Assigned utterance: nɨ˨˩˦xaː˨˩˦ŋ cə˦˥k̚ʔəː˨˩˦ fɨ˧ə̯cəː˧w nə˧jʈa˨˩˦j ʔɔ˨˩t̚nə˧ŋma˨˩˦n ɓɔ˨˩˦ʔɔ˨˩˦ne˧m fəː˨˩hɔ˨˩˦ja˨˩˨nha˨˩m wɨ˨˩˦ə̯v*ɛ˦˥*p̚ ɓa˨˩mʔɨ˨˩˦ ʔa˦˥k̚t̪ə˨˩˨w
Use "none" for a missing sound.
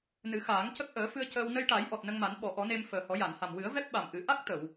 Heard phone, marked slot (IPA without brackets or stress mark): ɛ˦˥